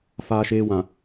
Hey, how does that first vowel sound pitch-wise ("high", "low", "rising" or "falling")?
low